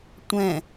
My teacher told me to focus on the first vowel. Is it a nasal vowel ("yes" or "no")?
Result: yes